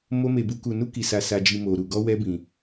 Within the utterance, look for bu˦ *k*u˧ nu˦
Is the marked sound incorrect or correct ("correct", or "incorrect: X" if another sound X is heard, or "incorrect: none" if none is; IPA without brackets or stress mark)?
correct